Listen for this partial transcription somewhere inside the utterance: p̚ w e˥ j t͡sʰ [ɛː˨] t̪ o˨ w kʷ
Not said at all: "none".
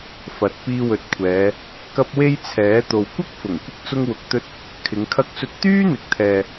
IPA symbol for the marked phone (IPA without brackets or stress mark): ɛː˨˥